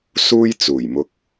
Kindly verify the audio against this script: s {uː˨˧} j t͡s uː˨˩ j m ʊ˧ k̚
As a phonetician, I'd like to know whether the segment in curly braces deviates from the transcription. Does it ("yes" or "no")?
yes